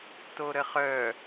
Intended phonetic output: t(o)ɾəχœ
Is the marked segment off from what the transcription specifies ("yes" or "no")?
no